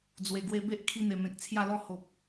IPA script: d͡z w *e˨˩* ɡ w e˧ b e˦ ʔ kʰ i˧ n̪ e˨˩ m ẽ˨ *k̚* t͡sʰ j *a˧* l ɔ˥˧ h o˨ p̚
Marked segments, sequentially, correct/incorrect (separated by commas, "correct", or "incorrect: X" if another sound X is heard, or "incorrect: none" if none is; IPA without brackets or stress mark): correct, correct, incorrect: a˥˧